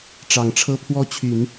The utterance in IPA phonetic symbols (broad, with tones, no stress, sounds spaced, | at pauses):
ʈ͡ʂ ɑ˨˩ ŋ ʈ͡ʂʰ ɤ˥ pʰ w ɔ˥ t͡ɕʰ y˨˩˦ n